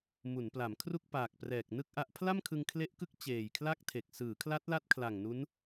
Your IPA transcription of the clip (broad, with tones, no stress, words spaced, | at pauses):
mu˩˦npla˩˦mkʰru˥˩k̚ paː˨˩k̚prɛː˨˩k̚ nɯ˥˩k̚ʔa˦˥ʔ pʰla˥˩mkʰɯ˧ŋ kʰle˦˥ʔkɯ˦˥k̚ t͡ɕeː˨˩jkʰla˥˩k̚tʰe˨˩k̚ sɯː˩˦kʰla˦˥t̚la˦˥t̚ kʰla˨˩ŋnu˦˥n